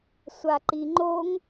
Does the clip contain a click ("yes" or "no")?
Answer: yes